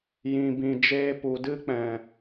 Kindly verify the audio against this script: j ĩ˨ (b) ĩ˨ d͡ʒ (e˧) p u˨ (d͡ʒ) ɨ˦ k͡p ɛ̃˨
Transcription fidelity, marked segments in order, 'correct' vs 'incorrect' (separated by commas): correct, incorrect, incorrect